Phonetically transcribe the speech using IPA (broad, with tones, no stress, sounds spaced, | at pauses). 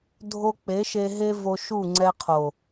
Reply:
dʱ o˧ k͡p e˨˦ ʃ e˧ ɦ e˦ v o˧ ʃ u˦˨ ŋ͡ǀ ɛ˧ qʰ o˨